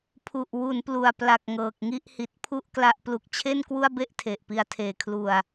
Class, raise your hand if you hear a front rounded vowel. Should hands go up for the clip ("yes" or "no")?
no